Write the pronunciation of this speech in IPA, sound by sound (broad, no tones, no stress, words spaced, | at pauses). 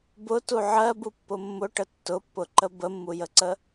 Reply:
bʊtu ʕɜbupːʊ mːʊʈə tːʊpːʊǃə bəmːujəǀə